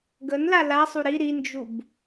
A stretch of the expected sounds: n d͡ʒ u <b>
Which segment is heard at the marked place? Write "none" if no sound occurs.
b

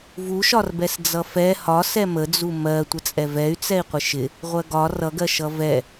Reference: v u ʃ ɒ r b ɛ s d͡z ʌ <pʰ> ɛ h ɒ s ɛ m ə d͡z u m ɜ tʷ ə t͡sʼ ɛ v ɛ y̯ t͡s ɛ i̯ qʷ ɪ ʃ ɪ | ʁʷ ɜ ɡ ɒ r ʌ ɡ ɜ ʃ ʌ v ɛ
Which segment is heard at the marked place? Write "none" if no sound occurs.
f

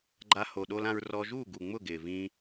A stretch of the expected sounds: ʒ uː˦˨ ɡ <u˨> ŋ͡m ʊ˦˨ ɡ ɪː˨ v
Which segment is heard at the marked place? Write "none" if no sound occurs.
u˨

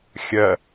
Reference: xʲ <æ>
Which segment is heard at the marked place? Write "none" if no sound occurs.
ɐ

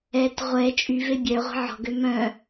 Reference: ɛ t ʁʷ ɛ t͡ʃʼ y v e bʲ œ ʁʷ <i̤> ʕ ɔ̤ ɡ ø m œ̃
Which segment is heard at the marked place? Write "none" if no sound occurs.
i̤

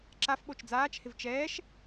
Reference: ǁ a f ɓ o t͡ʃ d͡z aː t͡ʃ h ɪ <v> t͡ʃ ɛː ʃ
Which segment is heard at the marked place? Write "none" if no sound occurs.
v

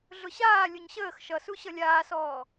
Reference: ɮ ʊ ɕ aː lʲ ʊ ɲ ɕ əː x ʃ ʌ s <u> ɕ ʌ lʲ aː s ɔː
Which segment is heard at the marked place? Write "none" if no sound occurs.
u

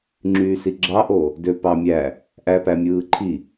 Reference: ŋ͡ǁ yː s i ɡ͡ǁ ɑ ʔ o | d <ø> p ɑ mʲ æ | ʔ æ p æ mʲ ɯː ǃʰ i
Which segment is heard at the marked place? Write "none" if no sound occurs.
ø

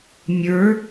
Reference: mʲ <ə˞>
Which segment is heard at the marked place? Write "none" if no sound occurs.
ə˞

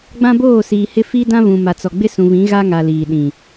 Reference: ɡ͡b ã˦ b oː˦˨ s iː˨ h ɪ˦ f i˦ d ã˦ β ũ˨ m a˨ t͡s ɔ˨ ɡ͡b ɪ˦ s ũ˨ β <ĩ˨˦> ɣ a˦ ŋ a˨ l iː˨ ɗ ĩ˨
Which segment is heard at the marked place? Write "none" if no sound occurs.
ĩ˨˦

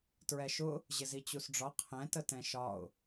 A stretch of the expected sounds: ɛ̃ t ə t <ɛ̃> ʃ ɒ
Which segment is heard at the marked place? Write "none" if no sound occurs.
ɛ̃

